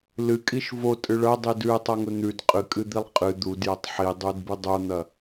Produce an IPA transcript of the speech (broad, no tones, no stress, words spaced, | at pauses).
lɨkʼiʃ votʼɨ ɭɐdˤi dʉe̯tˤaŋɵ n̪ʉd qʼɨkʼɨd̪ilˠ qʼɨ d̪udjɐtˤ ħidˤudbɨ dˤon̪ɐ